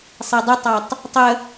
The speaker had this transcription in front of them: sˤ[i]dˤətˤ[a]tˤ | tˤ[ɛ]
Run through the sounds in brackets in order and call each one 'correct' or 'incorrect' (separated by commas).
incorrect, incorrect, incorrect